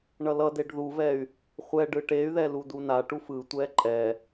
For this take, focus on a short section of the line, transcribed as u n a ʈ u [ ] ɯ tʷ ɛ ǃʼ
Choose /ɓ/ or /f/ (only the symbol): f